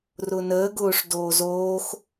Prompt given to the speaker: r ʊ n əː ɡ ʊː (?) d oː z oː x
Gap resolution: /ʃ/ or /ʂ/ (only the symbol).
ʂ